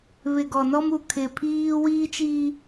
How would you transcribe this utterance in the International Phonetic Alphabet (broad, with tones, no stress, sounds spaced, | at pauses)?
β ɪ˨ ɡ ɔ˨ n ɔ˦ m u˨ kʰ ɪ˨ pʰ iː˦ w iː˦ t͡ʃ iː˦